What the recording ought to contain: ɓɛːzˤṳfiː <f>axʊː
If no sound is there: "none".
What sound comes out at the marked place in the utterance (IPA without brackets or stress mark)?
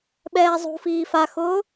f